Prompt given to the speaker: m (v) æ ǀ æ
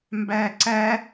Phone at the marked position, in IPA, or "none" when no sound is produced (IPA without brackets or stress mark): b